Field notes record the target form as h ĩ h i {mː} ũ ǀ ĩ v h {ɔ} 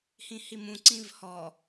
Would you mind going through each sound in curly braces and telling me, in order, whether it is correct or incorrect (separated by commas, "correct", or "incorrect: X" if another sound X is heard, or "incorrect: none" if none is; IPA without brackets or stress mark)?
incorrect: m, correct